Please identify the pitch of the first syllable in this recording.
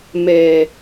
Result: low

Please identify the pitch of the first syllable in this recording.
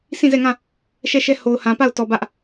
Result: falling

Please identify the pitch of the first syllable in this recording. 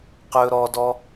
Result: low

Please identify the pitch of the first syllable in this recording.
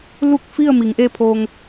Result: falling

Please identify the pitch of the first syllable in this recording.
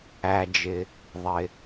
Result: low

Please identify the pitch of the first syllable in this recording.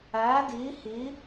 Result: rising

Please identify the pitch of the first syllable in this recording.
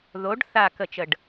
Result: rising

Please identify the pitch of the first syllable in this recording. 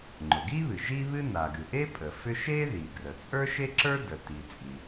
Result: low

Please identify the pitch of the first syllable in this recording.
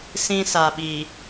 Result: high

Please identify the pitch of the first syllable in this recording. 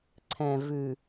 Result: low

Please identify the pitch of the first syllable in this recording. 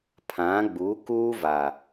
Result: rising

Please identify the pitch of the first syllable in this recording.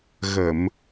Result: low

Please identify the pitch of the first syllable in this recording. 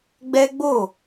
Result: high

